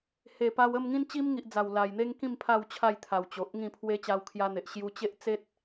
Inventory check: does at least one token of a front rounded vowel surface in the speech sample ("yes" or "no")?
no